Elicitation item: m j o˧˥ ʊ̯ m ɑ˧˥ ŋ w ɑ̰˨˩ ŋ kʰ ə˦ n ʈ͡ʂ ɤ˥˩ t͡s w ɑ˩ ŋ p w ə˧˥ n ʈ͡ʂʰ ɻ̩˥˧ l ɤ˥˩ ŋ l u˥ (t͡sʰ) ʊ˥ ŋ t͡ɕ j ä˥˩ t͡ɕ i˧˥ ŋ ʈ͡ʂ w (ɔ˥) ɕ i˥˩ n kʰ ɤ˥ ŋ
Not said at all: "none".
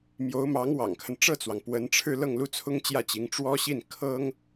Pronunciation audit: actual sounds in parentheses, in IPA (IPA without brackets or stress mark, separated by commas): t͡sʰ, ɔ˥